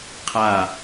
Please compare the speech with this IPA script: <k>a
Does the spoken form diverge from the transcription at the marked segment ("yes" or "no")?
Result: yes